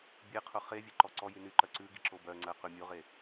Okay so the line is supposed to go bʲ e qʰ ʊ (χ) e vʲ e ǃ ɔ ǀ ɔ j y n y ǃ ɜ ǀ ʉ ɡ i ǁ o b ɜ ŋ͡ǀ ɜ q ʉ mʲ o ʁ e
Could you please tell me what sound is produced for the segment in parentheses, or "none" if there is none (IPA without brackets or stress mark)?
χ